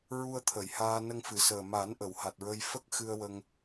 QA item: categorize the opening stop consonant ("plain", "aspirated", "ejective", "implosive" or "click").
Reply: aspirated